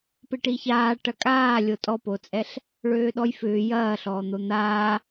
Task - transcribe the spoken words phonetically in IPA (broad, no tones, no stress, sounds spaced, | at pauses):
p ɪ ʈ i ç aː ʈ ɐ kʼ aː lʲ o tʼ ɔ p o t͡sʼ ɛ ɬ | ɭ øː ɗ ɔ j f ʏː j ɐː ɬ ɔː n̪ o n̪ aː